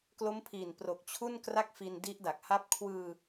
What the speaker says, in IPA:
k l o˦˥ m pʰ i˨˩ n p r o˨˩ k̚ t͡ɕʰ u˥˩ n k r a˥˩ k̚ f i˧ n d i˦˥ ʔ d a˨˩ k̚ h a˦˥ p̚ kʰ w ɯː˧

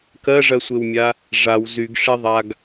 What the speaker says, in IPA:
k ɜ ʐ ɜ sʷ e w mʲ a | ʐ a w z y ɡ ʂ e ðˤ a ɡ

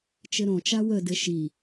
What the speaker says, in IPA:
t͡ʃ ɘ ɾ õ t͡ʃ a w ə d ɘ ʃ i

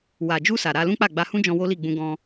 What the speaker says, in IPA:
w a˨ d͡ʒ u˧ s a˨ ɾ a˧ l ũ˦ k͡p a˦˨ ɡ͡b a˧ h ũ˦ d͡ʒ ɔ̃˧ w o˦ l i˦˨ ɡ͡b ũ˧ ɡ ɔ̃˧

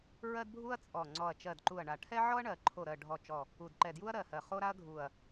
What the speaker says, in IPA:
ɹ ɜ˦ d bʱ u˦ ɐ̯ t͡sʼ ɔ˨˩ ŋ͡ǀ ɔ˨˩ ɐ̯ t͡ʃ ɜ˨˩ d ǃ u˨˩ ɐ̯ ɳ a˨˩ ʈʰ ɛ˦ ʕ ɔ˦ ɐ̯ ɳ ɜ˨˩ ǃʰ o˨˩ ɾ ɜ˨˩ ɖʱ ɔ˨˩ t͡ʃ ɔ˨˩ | u˨˩ d ǃ ɛ˨˩ d j u˦ ɐ̯ ɾ ɜ˨˩ h ɜ˨˩ χ o˦ ɾ a˦ ɐ̯ ɡʱ u˨˩ ɐ̯

